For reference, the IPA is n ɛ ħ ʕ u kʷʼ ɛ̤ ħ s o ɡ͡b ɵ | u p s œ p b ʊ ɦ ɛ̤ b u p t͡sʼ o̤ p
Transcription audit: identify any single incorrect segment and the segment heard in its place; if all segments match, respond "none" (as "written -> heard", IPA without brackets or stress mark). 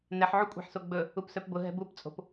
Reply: none